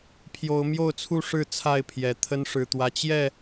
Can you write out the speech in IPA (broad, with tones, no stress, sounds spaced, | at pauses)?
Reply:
pʰ j o˨˦ ʊ̯ m j o˥˨ ʊ̯ t͡sʰ u˥˨ ʂ ɻ̩˥˨ t͡sʰ a˥˨ ɪ̯ pʰ j ɛ˨˩ t̪ʰ ə˦ n ʂ ɻ̩˨˩ t̪ w ä˦ t͡ɕ j ɛ˥˨